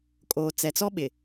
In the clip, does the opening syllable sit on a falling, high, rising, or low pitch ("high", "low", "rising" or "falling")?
low